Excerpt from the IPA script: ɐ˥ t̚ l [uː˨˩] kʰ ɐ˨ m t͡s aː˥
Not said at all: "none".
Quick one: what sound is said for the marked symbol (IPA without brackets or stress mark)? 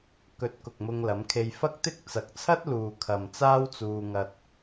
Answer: uː˨